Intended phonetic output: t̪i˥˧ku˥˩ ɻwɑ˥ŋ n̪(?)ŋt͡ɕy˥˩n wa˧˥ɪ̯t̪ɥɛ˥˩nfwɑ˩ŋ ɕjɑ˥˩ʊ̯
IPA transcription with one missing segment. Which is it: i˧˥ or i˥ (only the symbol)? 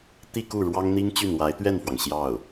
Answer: i˥